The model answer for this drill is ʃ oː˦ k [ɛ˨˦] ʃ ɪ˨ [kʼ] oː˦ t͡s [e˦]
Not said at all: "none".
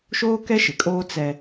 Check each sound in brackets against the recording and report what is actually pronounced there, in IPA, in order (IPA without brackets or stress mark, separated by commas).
ɛ˦, kʼ, ɛ˦